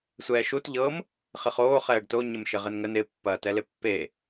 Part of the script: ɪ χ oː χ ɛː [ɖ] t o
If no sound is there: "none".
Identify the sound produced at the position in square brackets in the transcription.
ɖ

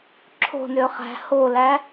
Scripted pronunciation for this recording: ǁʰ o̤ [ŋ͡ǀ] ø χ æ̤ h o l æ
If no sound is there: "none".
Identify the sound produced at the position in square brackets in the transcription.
n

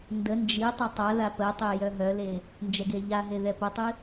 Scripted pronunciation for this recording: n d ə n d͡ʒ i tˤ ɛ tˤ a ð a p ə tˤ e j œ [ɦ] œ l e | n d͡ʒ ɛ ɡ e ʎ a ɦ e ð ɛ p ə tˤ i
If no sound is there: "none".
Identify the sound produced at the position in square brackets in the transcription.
ɦ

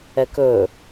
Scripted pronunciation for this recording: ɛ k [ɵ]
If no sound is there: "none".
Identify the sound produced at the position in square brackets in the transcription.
ɵ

